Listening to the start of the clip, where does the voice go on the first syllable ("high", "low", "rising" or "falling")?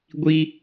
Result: high